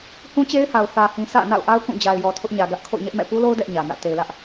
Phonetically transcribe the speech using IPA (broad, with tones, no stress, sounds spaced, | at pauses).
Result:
h ũ˦ t͡ɕ e˦ ɪ̯ h a˨ ʊ̯ θ ä˨ h ĩ˨ s ä̰˦˨ n a̰˦˨ ʊ̯ ʔ a˦ ʊ̯ k ũ˦˨ d͡ʑ a˨ ɪ̯ j ɔ˨ tʰ ʊ˦ ʔ ɲ ä˨ ɡ ä˦ ʔ kʰ o̰˦˨ ʊ̯ ɲ ɛ˦ ʔ m ɛ̰˦˨ p u˦ l o˦ ʊ̯ d ɛ˦ ʔ ɲ ä˨ n ä̰˦˨ t e˨ ɪ̯ l ä˦ ʔ